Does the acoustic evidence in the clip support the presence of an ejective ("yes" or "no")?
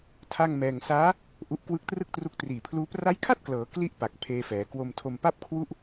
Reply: no